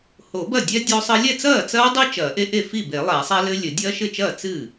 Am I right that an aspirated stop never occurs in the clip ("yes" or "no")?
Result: yes